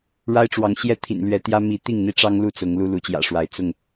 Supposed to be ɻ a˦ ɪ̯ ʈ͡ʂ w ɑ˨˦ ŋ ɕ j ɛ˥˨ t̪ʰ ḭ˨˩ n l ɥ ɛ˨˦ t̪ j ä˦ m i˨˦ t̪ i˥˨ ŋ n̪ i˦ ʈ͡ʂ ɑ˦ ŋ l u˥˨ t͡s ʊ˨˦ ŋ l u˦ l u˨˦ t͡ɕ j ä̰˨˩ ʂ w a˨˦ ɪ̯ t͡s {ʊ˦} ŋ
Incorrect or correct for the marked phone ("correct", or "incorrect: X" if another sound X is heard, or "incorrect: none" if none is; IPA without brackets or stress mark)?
incorrect: ʊ˥˨